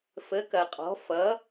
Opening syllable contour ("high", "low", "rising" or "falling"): rising